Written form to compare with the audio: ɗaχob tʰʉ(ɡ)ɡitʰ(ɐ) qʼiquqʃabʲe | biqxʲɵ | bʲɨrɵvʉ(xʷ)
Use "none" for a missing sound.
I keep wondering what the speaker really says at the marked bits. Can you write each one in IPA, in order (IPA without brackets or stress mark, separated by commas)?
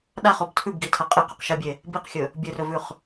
b, ɐ, χ